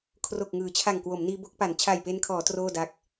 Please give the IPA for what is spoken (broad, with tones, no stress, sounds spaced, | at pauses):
kʰ r o˨˩ k̚ ŋ ɯː˩˦ t͡ɕʰ a˨˩ ŋ k w o˩˦ m n iː˧ b o˥˩ k̚ p a˩˦ n t͡ɕʰ a˨˩ j p e˧ n kʰ ɔː˩˦ t r oː˥˩ d a˦˥ k̚